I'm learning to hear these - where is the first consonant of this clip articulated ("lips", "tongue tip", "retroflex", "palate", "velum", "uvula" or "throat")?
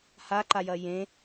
throat